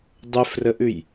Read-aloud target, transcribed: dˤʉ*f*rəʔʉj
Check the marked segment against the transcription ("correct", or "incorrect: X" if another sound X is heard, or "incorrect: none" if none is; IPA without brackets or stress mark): correct